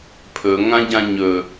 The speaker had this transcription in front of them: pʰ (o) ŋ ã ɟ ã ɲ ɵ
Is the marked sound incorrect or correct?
incorrect